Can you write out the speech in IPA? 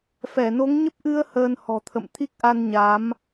f ɛ˧˩ n o˨˦ ŋ ɲ ə˦˥ p̚ ʔ ɨ˧ ə̯ h əː˧ n h ɔ̤˨˩ t̪ʰ ə̰˧˨ m t̪ʰ i˦˥ k̚ ʔ a˧ n ɲ a˨˦ m

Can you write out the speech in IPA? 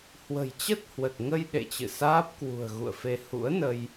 h w ə̤˨˩ j t͡ɕ ə˦˥ t̚ h w ə˨˩ t̚ ŋ ə˧ j ɗ ḛ˧˨ t͡ɕ ɨ̰˧˨ s aː˦˥ p̚ k w ṳ˨˩ ə̯ ɣ ṵ˧˨ ə̯ f e˧ h ṵ˧˥ ə̯ n ə˧ j

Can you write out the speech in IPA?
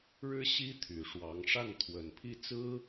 ɻ ɻ̩˥ ɕ i˥ t̪ʰ y˨˩ ʂ w ɑ˧˥ ŋ ʂ a˥˩ n t̪ʰ w ə˨˩ n pʰ i˥˩ t͡s ɹ̩˥

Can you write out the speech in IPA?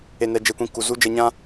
e˨ n ɛ˨ d͡ʒ e˨ kʷ ĩ˨ k u˨ z u˦ d͡ʒ ɛ˧ ɲ ã˦

